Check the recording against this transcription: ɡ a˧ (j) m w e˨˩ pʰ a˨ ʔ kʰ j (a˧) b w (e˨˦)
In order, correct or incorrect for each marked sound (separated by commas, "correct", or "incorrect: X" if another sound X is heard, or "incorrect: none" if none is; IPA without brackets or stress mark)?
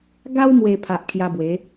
incorrect: w, correct, correct